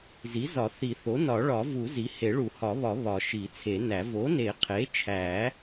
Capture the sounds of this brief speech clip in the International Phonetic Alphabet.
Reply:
zi˩˥zɒ˨˩˦θi˨˩˦θo˩˥ nɒ˨˩˦ɭɒ˨˩˦vu˨˩˦ zi˩˥he˨˩˦ ɭu˨˩˦hɒ˨˩˦βɒ˨˩˦ βɒ˨˩˦ ʃi˨˩˦t͡sʰe˨˩˦næ˨˩˦ vo˩˥ne˨˩˦qʰe˩˥t͡ʃʰæ˨˩˦

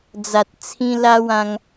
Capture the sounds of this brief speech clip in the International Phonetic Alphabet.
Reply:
d͡za˨t̚t͡sʰĩ˧ la˧wã˧ŋ

